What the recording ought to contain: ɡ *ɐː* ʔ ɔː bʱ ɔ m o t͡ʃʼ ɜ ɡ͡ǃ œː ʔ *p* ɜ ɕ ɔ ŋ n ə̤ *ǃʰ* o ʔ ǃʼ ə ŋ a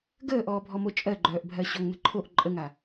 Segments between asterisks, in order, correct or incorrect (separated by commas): incorrect, incorrect, correct